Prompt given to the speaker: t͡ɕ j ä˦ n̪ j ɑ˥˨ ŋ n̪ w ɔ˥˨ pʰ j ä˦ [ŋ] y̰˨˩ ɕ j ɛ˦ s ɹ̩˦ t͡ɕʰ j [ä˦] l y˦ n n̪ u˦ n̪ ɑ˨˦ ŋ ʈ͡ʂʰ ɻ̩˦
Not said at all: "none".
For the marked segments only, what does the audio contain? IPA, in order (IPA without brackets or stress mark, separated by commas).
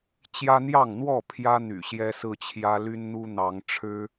n̪, ä˦